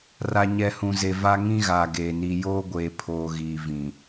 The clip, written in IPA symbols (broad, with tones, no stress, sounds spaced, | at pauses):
r a˨ ɲ ɛ˨ h ũ˨ z e˨ v a˦ ŋ ĩ˦ ɣ aː˨ ɡ eː˨ n i˨ j oː˦ ɡʷ eː˨ pʰ oː˨ ɣ iː˨ v ĩ˨